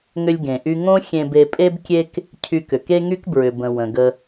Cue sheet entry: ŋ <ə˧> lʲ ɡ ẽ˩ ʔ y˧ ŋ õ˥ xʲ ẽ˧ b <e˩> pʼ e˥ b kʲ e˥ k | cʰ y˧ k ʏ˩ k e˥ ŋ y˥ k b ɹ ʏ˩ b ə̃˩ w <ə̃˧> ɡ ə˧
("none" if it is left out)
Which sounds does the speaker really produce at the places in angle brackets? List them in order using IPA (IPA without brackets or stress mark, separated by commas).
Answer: ʏ˧, e˧, ə̃˩